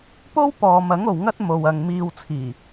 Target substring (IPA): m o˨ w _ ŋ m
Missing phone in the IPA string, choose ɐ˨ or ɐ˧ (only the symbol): ɐ˨